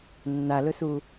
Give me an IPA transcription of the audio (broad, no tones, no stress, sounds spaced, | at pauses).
nː a l ɵ s u